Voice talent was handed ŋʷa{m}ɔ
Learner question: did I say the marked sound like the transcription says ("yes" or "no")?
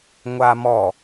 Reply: yes